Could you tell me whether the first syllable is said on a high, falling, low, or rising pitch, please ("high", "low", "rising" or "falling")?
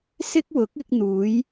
high